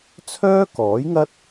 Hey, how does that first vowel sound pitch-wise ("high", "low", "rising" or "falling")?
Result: high